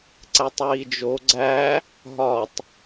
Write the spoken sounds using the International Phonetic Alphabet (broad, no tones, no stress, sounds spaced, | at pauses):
ǀ æ tˤ ɹ i d͡ʒ o ɡ͡ǀ æ | ɦ ɒ tˤ